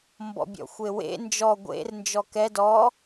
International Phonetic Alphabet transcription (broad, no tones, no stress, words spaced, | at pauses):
mbɔ̰bʲɔ̰xʷewḛ nd͡ʒɔ ɡʷḛr nd͡ʒɔkɛ dɔ